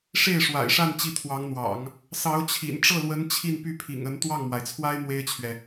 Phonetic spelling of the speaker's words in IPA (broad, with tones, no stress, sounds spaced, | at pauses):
ʂ e˥˩ ɪ̯ ʂ w a̰˨˩ ɪ̯ ʂ a˥˧ n t͡ɕ i˥˩ t̪ʰ w ɑ˧˥ ŋ n̪ w ɑ̰˨˩˦ ŋ | s ɑ˧˥ ʊ̯ t͡ɕʰ ḭ˨˩ n ʈ͡ʂ ɤ˥˩ l w ə˧˥ n t͡ɕʰ i˥˧ n p y˥˩ pʰ ḭ˨˩ ŋ ə˧˥ n t̪ w ɑ˥˩ ŋ m w a˩ ɪ̯ t͡sʰ w a˥ ɪ̯ m w e˥ ɪ̯ t͡ɕʰ ɥ ɛ˨